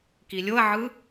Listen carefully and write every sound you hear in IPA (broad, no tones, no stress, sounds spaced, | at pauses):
k i lʲ o ɐ̯ ʕ ɯ